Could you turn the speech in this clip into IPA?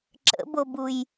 ǁ ə̰ b o b u j

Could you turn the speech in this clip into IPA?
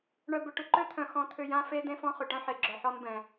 ɳ œ˧ b ʏ˧ ʈ ʏ˨ ǃ ø˦ t̪ʰ œ̃˨ x ɔ̃˨˦ t̪ʰ ʏ˧ j ã˦ f e˦ d̪ ẽ˦ f ɔ̃˦ χ ʏ˨ ʈ œ̃˦ ħ e˨ ɡ͡ǁ œ˨ ħ ɔ˧ n b ɛ̃˨

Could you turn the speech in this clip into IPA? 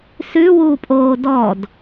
s ʉ w uː pʼ oː d ɔ d

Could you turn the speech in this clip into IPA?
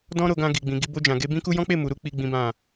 d ɔ̃˦ ɾ o˧ ɡ ã˧ ɡ i˨ ɡ͡b ĩ˨ ɡ i˧ b o˧ d͡ʒ ã˨ ɡ e˧ b ĩ˦ k u˦ j ɔ̃˦ k͡p e˦˨ m u˨ ɾ u˧ k͡p i˦ ɡ͡b ĩ˦ b ã˦˨

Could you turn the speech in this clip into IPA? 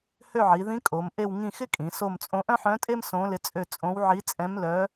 h ø˦˨ ʕ i˩˧ ð ĩ˧˥ kʼ o˩˧ m ʔ e˦˨ w ŋ ĩ˦˨ x ɪ˥ kʼ ĩ˩˧ s o˦˨ m t͡sʼ õ˧˥ ʔ œ̃˥ ħ œ̃˧˥ tʼ e˥ m s õ˧˥ l ɪ˧˥ t͡sʼ ø˦˨ t͡sʼ õ˧˥ w ʕ i˧˥ t͡sʼ ɛ̃˧˥ m l œ˧˥

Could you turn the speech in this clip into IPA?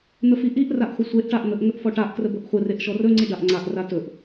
n̪ ə f i ʔ i ʔ r a ʔ χʷ ə sʷ e ʔ ʈ a ʔ n̪ ə ʔ ŋ ə ʔ f ɔ ʈ a ʔ k r ə b ɵ ʔ χʷ ə r e ʔ ʃ ɔ r ɵ ŋ͡ǀ i ɖ a ʔ ŋ͡ǀ a ʔ r a t ɵ ʔ

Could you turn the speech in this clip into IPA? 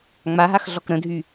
ŋ͡m a ɦ a x ɮ ɔ k ɾ ə̃ dʱ y

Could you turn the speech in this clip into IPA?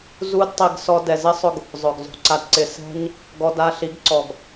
z u˦ d tˤ i˧ ɡ s ɔ˧ d ɛ˨ z ɪ˦ sˤ ʊ˧ ɡ | zˤ ʊ˨ ɡ zˤ o̤˧ ǀ a˧ d ǀ ɪ˧ s ɛ̤˧ ɲ | ɡ ɔ˧ d a˧ ɬ i˨˦ ɡ ǀ ɔ˨ ɡ

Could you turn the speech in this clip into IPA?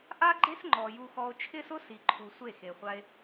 ʔ a˦ ɡ͡ǃ e˦ s ŋ͡ǃ ɔ˨ j u˧ x ɔ˧ o̯ t͡ʃʰ ɪ˦ s ʊ˦ s i˨ ǃʰ u˨ sʷ e˦˨ x e˨ χʷ a˧ e̯

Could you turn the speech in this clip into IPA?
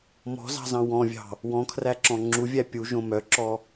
m ɔ̤ z ɑ̤ z ɑ̃ w ɔ̃ vʲ ɑ̤ | w ɔ̃ kʰ r æ ǁ ɔ̃ ŋ͡ǁ u vʲ æ pʲ u ʒ õ m œ ǁ ɔ

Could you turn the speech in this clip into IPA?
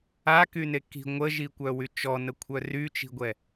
a k y n e k i̤ ŋʷ ə ʒ i kʷ œ w y t͡ʃ ɔ n ə kʷʰ œ r y t͡ʃ i̤ ɡʷ ɛ

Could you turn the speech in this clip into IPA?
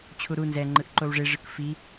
t͡ɕʰ u ɾ u n z ɛ ŋ͡ǃ ɯ ʔ ǃ o w ʐ e ʐ ɯ k f i

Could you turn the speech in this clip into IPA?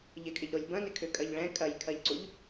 ʎ ɪ kʼ ɪ ʎ ɾ o lʲ b ɐ̃ n ɪ kʰ ʏ kʼ ɐ ʎ ɭ ɛ̃ kʼ ɐ j kʰ ɐ ʎ ǀ u ʎ

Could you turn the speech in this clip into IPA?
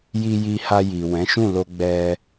j i˧ j i˧ h a˧ j i˨ w ɛ̃˨˦ ʃ ũ˦˨ l o˧ ɡ͡b ɛ˧

